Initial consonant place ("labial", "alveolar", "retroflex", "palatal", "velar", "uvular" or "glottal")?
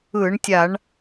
retroflex